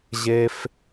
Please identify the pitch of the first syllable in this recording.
low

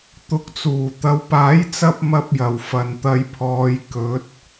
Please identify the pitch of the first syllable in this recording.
rising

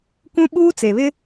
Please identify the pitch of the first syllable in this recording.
high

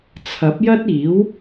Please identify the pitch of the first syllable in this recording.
rising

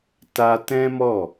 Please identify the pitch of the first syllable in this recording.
high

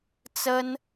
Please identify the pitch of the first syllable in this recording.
high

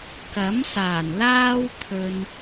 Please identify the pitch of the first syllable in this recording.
rising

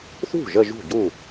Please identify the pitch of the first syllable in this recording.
falling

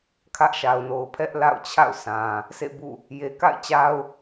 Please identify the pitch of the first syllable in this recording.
high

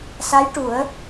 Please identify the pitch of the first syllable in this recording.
rising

